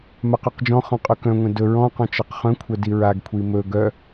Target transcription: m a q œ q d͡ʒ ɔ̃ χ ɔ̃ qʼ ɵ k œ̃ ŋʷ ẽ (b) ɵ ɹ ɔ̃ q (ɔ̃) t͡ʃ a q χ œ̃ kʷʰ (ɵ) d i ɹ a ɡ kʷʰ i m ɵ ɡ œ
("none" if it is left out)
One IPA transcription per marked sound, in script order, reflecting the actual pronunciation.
d, ɔ̃, œ

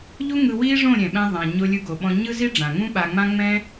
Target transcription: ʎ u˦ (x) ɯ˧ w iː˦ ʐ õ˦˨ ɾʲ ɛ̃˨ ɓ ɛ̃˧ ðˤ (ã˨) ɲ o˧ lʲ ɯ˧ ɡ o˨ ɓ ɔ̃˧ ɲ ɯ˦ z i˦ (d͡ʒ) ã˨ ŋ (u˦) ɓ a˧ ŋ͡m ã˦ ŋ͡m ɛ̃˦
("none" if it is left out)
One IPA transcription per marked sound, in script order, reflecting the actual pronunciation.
ŋ, ã˨, ɖ͡ʐ, ũ˦

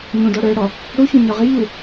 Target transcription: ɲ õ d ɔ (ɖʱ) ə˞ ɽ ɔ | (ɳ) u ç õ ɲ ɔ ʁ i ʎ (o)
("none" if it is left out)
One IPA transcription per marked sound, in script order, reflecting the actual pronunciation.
ɽ, ɽ, u

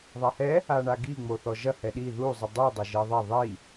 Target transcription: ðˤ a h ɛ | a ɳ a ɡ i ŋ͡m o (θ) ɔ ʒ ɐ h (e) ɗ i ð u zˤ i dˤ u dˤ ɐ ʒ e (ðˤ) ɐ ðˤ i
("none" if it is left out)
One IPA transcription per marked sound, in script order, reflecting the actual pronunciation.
θ, ɛ, ðˤ

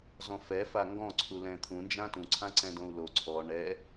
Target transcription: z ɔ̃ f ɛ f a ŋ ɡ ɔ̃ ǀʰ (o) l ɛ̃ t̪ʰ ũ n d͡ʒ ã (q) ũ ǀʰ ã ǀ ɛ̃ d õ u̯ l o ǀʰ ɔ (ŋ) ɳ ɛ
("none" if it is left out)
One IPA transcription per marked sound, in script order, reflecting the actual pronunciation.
u, t, none

